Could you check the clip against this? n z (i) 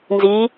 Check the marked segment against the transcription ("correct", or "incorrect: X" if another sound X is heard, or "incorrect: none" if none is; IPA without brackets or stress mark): correct